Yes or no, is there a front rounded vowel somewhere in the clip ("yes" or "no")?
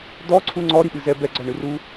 no